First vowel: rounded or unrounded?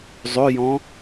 rounded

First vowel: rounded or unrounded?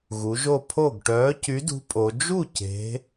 rounded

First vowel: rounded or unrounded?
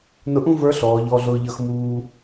rounded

